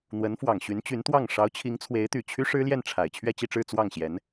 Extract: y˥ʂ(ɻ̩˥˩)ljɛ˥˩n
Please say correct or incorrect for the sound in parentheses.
incorrect